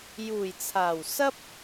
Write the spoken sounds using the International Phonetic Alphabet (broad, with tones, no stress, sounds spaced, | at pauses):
j uː˨˩ j t͡sʰ aː˨˩ w s ɐ˥ p̚